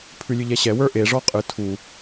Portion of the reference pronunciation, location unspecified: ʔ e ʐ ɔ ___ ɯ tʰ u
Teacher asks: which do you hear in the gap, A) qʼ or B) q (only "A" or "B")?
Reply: A